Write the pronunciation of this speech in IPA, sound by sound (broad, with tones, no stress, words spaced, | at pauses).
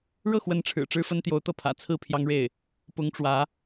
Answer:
ɻɤ˥˩xwə˧˥nʈ͡ʂʰɻ̩˨˩ ʈ͡ʂɻ̩˥fə˥nt̪jo˧˥ʊ̯ t̪ɤ˥˩pʰä̰˨˩ t͡sʰɹ̩˥˩pʰjɑ˥ŋɻe˥˩ɪ̯ | pʊ˧˥ŋʈ͡ʂwä˧˥